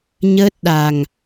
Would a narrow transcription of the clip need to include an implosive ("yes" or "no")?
yes